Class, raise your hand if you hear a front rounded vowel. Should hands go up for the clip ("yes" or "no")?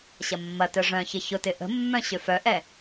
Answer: yes